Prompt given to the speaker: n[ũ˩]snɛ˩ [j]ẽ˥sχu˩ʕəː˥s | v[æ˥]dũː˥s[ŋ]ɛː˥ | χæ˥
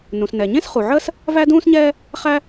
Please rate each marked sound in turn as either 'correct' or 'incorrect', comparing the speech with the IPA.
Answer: correct, incorrect, correct, incorrect

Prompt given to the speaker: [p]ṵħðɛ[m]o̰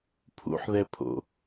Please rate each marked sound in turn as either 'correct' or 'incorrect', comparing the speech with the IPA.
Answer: incorrect, incorrect

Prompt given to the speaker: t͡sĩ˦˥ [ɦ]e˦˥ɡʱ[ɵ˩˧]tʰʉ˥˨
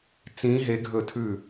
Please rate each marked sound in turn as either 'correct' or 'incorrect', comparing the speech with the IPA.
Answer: correct, incorrect

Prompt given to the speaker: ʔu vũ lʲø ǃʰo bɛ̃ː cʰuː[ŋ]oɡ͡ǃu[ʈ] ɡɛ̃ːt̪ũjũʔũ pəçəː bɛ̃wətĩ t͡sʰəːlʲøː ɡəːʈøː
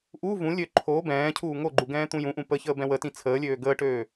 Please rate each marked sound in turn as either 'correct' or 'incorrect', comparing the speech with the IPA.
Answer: correct, incorrect

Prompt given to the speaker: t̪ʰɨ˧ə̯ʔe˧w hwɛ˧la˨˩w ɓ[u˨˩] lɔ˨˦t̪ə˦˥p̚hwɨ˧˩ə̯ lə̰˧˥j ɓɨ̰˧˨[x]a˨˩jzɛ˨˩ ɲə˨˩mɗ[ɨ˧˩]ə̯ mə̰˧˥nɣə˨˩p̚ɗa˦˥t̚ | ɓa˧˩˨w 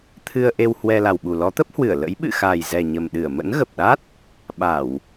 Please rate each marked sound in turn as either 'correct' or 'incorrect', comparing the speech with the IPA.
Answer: correct, correct, correct

